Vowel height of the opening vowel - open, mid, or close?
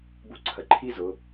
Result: close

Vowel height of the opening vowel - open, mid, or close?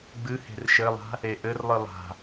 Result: close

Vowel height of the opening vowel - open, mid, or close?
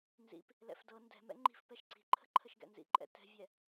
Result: close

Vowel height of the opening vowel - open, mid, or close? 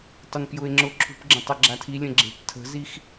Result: close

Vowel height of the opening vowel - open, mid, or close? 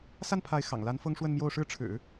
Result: open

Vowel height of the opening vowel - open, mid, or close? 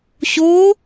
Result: mid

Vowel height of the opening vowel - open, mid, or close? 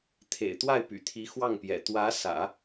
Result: mid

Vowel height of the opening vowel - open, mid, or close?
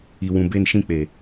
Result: close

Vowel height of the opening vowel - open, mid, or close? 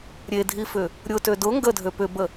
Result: mid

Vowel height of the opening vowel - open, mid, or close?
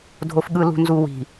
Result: mid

